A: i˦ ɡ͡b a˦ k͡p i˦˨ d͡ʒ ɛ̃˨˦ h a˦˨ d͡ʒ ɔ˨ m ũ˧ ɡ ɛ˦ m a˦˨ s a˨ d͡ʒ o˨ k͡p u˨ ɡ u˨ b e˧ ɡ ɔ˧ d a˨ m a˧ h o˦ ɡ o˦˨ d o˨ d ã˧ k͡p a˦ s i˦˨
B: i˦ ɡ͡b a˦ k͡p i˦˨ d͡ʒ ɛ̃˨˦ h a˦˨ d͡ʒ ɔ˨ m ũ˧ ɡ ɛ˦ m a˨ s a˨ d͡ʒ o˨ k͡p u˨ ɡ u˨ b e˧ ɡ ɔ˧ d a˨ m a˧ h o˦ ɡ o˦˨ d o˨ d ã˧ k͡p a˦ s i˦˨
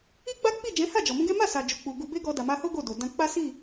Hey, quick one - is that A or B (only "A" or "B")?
A